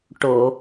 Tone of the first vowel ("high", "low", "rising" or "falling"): low